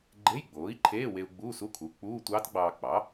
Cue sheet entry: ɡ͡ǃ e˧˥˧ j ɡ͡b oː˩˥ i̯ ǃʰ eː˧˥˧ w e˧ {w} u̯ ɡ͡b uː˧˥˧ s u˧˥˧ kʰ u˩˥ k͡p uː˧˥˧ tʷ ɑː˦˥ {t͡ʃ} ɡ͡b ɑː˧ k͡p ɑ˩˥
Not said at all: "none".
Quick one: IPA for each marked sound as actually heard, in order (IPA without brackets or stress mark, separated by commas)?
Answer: none, t